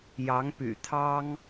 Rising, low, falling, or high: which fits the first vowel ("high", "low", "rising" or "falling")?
rising